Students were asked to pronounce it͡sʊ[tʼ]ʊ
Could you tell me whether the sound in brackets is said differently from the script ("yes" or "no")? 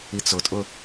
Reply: no